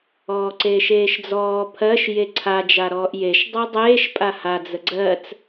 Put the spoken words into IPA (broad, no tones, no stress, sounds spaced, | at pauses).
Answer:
ɔː ǀ eː ʃ eː ʃ d͡z ɔː pʰ ɜ ʃ j e ǀʰ a d͡ʒ a ɾ ɔː ʔ j e ʃ dˤ ɜ dˤ eː ʃ pʼ a h a d͡z ə ɡ͡ǀ ɜ t͡s